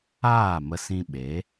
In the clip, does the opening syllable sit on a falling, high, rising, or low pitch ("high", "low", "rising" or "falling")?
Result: falling